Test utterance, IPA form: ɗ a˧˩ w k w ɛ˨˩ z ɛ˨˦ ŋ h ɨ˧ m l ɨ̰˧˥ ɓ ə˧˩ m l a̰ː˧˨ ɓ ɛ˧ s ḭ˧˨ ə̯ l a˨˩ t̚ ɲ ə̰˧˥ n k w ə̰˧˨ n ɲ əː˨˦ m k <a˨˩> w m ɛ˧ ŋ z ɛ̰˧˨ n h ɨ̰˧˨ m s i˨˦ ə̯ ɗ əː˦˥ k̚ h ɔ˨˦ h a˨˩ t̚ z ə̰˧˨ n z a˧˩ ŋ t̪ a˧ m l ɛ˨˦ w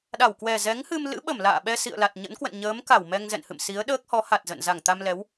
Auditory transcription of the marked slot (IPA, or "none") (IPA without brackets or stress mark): a˧˩